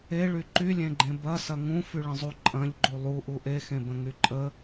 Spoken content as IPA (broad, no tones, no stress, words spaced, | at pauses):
eɭy ǃylʲẽɡ͡ǃẽ bɐsɐ ŋũfyɭə̃zˤu ǃʼɐ̃ʎɡ͡ǃu lˠuʔu ʔexẽbə̃ŋy ǃʼə